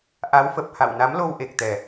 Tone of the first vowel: rising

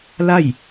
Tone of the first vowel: falling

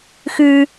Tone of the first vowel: high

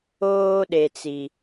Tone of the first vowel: high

